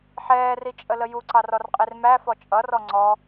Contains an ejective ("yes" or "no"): yes